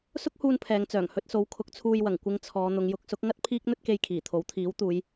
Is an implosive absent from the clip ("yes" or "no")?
yes